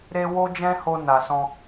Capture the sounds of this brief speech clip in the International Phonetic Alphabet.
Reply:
ɾe˦ wo˦d͡ʒɛ̃˦ho˧ na˨sɔ̃˧

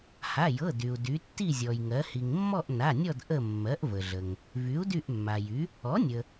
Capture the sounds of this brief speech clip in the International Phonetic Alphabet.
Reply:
ha˩˧˩jɤ˩˧˩ dy˩u̯ dy˩˧tːi˦˨zʲɔ˩jŋɜ˩˧ hi˩ŋmːɔ˦˨ʔna˩˧˩nʲɔ˦˨d ʔə˦˨mːɜ˩˥ʔvə˩ɮə˩ŋ | vy˩˥u̯dy˦˨ʔmːa˩jy˩˥ | ɔ˩˥nʲə˩

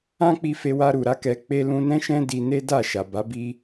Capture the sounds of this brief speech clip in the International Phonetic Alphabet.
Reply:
ã˦k͡pi˧ fe˧wa˧ɾu˨ɾa˧ kɛ˧ k͡pe˧lũ˧nɛ̃˦ʃɛ̃˦ di˧ ne˦da˦˨ ʃa˨ba˨˦bi˦

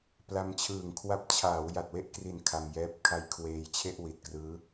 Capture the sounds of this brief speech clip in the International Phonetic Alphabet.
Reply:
pla˧mt͡ɕʰɯː˨˩ŋ kʰwa˦˥p̚ t͡ɕʰaː˩˦wja˨˩t̚we˥˩ʔkri˨˩n kʰa˧mjɛː˦˥p̚ kʰa˦˥jkʰweː˧jt͡ɕʰe˥˩ʔ wi˨˩t̚krɯː˦˥

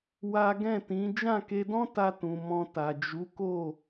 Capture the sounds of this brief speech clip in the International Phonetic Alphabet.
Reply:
wa˦ ɡɛ̃˦˨tĩ˨˦ d͡ʒã˦˨ke˧dɔ̃˦ ta˧tũ˨ mɔ̃˧ta˨ d͡ʒu˨˦ko˦˨

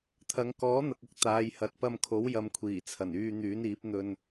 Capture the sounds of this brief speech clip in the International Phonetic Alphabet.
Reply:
t̪ʰɐ˨˧ŋ kɔː˨˥n̪ɐ˨k̚ ʊ˧k̚ t̪aː˨˧jhɐ˨˥t̚ pɐ˧mkʰo˨˥wjɐ˨˧mkʷʰiː˨˩ t͡sʰɐ˨˩nyː˧n̪yː˨˥n iː˨˥p̚n̪ɵ˧n

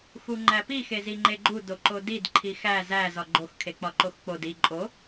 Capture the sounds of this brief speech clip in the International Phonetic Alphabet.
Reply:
xuŋ͡ǃæpi xeziŋ͡ǃeɡ͡ǃu doǃodid ǃʰixæ zæ zɒɡ͡ǃox kʰek͡pɒǃoxk͡pod i ǃʼo

